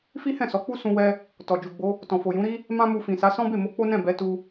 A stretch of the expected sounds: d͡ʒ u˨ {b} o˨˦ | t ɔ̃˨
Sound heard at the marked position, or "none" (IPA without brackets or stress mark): ɡ͡b